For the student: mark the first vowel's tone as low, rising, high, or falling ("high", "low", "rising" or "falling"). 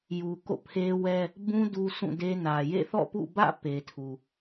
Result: low